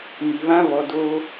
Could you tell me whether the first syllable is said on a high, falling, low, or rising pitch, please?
low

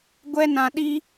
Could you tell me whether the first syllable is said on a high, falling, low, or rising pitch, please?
high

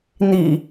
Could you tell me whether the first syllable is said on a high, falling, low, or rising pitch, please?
low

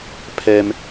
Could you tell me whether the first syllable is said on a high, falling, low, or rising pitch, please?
low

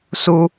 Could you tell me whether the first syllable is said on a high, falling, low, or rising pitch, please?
high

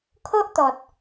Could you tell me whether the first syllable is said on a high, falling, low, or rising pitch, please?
high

